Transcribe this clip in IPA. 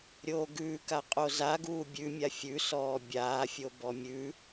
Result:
ɾʲ oː ɡ ʉː k a qʼ o z a ɡ uː bʲ ʉ mʲ a fʲ ʉ s ɔː bʲ aː fʲ o b ɔ mʲ ʉ

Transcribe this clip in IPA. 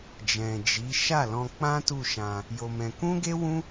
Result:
d͡ʒ ɛ̃˨ d͡ʒ i˨˦ ʃ a˦˨ l ɔ̃˧ k͡p ã˦ t u˦˨ ʃ ã˧ | j o˧ m ɛ̃˧ k ũ˦ ɡ e˦ w ũ˦

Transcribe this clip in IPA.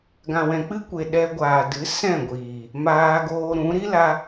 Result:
ɡ ã˨ w ɛ̃˨ k͡p ɨ˦ kʷ e˨ ɗ ɛ˧ ɡʷ aː˨ d ɨ˨˦ s ɛ̃˦˨ ɡʷ iː˨ | m aː˧ ɡ oː˧ ɾ ũ˨˦ ɾ i˦ l a˧

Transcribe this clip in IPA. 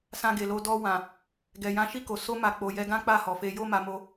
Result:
s ã˧ ɡ e˨ l o˧ d ɔ˧ w ã˨ | ɡ ɛ˨ j ã˨˦ ʃ i˦˨ k o˨ s o˧ m a˨ k͡p o˨ j ɛ˧ ɡ ã˦ k͡p a˦˨ h ɔ˨ f e˧ j o˦ m a˧ m o˧

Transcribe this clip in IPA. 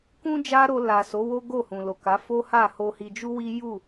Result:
k ũ˦ d͡ʒ a˦ ɾ o˧ l a˨ s o˨˦ w o˦ ɡ o˦˨ h ũ˨ l o˨ k a˨˦ f o˦ h a˦˨ h o˧ h i˧ d͡ʒ u˦ w i˦ j u˦˨

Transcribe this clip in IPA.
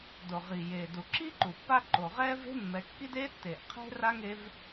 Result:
d o˩ ʁ i˩ j eː˩ d u˩ ǁ i˥ ǃ u˩ pː a˦ ǃ o˩ ʁ ɛː˥ v e̤˥ mː ɛ˨ kː i˥ d eː˥ tː eː˩ ʔ qʰ e̤˥ r a˥ ŋ e˦ v

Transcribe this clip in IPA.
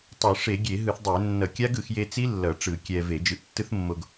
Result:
tˤ ɯ˧˩˧ ʂ e˧˩˧ ɡʲ e˧˩˧ ɦ ɯ˧˩˧ θ dˤ e˧˩˧ nː ʌ˧˩˧ kʲ a˦˥ ɡ ɯ˧˩˧ x j e˧ t͡s i˦˥ lː ʌ˧˩˧ ʈ͡ʂ ɯ˧˩˧ kʲ ɛ˧ v e˧˩˧ d͡ʒ ɯ˧ ʔ tː ɯ˦˥ θ mː o˧ ɡ

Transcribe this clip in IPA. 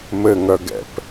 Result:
m ɘ ŋ œ ɡ ɛ̰ p

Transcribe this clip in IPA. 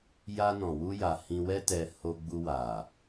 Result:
j a˧ n ɔ̃˨ w u˧ j a˨ h ĩ˧ w ɛ˦ t ɛ˧ h o˧ ɡ͡b u˧ w a˨

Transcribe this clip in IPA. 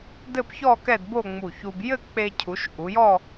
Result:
d ɘ˥˧ p ç ɔ˥˧ k ɛ˥˧ d b o˥˧ ŋ͡m u˧˩ ç u˧ b j ɘ˥˧ k͡p e˧ cʰ u˩˧ ʃ ʔ u˩˧ j ɔ˥˧

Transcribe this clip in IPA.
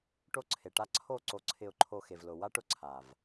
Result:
ʈ o˦ ǀʰ e˨ ʈ a˦ ǀʰ o˦˨ ǀ o˧ ǀʰ ɪ˧ ʊ̯ ǃʰ o˧ x e˨ v l ʊ˨ w a˦ ʈ ʊ˦ ǀʰ a˨ v

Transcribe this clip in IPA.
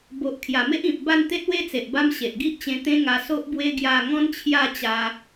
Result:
b o˨ ʔ kʰ j a˨˩ m e˦ ʔ ĩ˨ p̚ b a˥˧ n t̪ e˦ t̚ w e˦ t͡s e˨ ʔ b a˦ m ɕ e˨ ʔ ɡ i˦ ʔ t͡ɕ ẽ˧ t̪ ẽ˦ ŋ a˧ s o˦ ʔ b w e˦ ɡ j a˥˧ ŋ ɔ̃˦ n t͡ɕʰ j a˥˧ t͡ɕ a˧

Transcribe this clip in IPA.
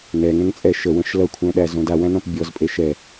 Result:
n ɛ ŋ ɛ̃ ŋ t͡sʼ ɛ ʃ ə w ə̃ ʃ l ʌ kʷʰ æ̃ ɗ æ z õ d a w æ̃ n ɔ̃ p bʲ ɔ z pʼ e ʃ ɛ

